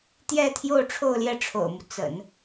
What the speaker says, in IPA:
t̪ j ɛ˥˧ t̪ʰ j o˥˧ ʊ̯ ʈ͡ʂʰ o˥˧ ʊ̯ l j ɛ˥˩ ʈ͡ʂʰ o̰˨˩ ʊ̯ m u˦ t͡s ə̰˨˩˦ n

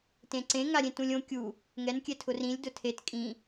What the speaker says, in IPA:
t ẽ ǀ ẽ ŋ a ɾʲ ẽ t ũ lʲ õ kʲ u | ŋ ɛ n kʲ ɛ tʰ ʊ r ĩ lʲ d ʊ tʰ e t kʼ ĩ

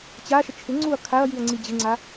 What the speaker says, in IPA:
t͡ɕ a ʃ ə t͡ʃʰ ɪ ŋ͡ǀ u ɐ̯ kʰ a ɐ̯ j i ɐ̯ ŋ͡ǀ i d͡ʑ ɪ ŋ͡ǀ a

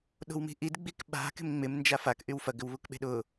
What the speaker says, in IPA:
ɗ o̤ w m i̤ ʔ i d ɡ͡b i k ɓ a̤ k e̤ m ŋ͡m ɪ m n d͡ʒ a f a k ʔ y w f ɐ ɡ ʏ w β u k ɓ e̤ ɗ ʊ

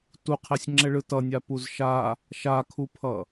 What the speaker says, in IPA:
t u qʰ ɛ sʲ ŋ͡ǁ ɛ ɭ ɯ t ʌ nʲ a p u z ʃ a | ʃ a kʰ u pʰ ʌ

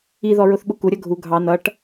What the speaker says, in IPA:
i ð ɔ ɹ ʊ θ ɓ ʊ k u ɾʲ ʌ ɡʱ u ɡʱ ɑ n ʌ ʈ

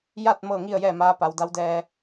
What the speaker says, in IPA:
j a˥˨ t̚ m ɤː˥˨ ŋ i˥˨ ə̯ j ɛː˥˨ m aː˧˥ p a˩˧ w d a˧˥ w d ɛː˧

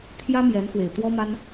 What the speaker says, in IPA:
t̪ʰ j ä˥ m j ɛ˧˥ n x w e˨˩ ɪ̯ t̪ w ɔ˥ m a˥ n

